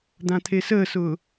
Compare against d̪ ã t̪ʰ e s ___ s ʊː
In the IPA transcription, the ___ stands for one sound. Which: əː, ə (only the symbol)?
əː